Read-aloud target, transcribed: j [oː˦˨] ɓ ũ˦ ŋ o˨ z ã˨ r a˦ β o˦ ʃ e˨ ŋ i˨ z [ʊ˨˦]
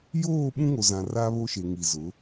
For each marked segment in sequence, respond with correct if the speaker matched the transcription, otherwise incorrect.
correct, correct

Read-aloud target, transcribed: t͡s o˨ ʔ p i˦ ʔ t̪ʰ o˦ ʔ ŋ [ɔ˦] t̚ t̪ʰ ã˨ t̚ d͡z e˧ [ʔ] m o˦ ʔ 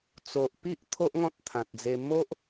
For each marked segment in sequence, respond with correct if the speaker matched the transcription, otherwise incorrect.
incorrect, incorrect

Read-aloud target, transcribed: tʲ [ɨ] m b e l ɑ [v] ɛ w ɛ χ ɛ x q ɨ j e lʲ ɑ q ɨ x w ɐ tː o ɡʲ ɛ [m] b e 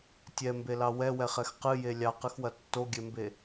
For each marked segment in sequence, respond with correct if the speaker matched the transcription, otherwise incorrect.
incorrect, incorrect, correct

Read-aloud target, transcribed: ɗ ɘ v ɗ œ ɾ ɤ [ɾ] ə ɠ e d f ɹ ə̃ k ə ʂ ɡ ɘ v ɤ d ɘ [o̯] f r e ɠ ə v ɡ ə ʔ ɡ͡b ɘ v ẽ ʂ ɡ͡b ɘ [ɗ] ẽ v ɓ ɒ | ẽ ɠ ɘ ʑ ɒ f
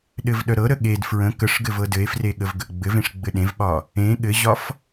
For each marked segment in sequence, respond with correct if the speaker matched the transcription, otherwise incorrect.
correct, incorrect, correct

